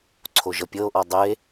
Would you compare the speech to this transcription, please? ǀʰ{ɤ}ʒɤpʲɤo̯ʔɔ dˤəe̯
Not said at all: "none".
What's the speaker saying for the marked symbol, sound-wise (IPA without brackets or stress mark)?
o